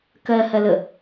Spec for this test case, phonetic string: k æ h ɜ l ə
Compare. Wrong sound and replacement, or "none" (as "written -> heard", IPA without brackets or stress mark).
æ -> ɜ